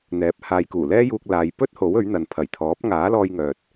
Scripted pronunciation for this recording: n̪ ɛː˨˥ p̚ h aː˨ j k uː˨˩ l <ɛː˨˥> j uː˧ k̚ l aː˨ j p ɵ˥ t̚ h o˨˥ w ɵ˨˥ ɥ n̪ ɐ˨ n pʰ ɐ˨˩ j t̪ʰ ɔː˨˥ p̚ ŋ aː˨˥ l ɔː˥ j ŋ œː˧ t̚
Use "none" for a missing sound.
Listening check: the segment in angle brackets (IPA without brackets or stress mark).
ɛː˥